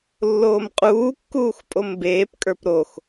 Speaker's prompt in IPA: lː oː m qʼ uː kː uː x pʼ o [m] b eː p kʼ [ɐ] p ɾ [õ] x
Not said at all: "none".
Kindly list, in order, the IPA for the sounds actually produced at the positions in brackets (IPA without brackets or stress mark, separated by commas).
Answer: m, ə˞, o